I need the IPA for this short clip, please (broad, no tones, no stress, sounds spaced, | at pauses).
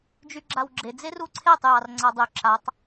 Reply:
d͡ʒ y ɡ͡ǁ a w ɡ͡ǁ e d͡z e r u ǀʰ e tˤ j ɑ r ŋ͡ǀ a dˤ y ǁ a tˤ